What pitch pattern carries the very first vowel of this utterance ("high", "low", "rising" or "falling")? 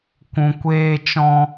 low